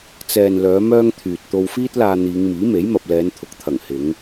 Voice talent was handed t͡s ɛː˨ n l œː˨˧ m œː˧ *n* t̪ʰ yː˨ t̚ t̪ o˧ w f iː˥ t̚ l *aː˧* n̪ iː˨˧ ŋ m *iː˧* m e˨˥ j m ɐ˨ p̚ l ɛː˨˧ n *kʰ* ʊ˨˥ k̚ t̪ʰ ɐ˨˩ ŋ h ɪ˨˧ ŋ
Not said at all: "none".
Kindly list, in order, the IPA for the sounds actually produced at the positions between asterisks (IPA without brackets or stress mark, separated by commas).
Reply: ŋ, aː˧, iː˨˥, t̪ʰ